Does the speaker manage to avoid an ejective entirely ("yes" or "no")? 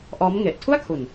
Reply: yes